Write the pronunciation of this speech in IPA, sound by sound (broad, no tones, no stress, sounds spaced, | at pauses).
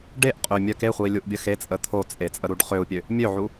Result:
ɖ e ʔ qʼ ø mʲ œ k e χʷ i lʲ u ʔ bʲ ə x e t͡sʼ ə t̪ʰ o t͡sʼ e t͡sʼ ə ɾ u ɖ χ ø u̯ pʲ ø | mʲ ø ʕ u